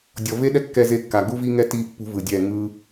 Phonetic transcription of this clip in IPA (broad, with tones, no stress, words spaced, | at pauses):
dʲɔ˨ve˦ɗɛ˦ kːɛ˧ze˧kːa˨ ɡu˦vi˦ŋɛ˦ ti˦pːṳ˦vɯ˨dʲɛ˦˨ ŋɯ˦